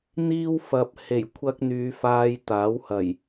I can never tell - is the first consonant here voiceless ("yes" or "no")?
no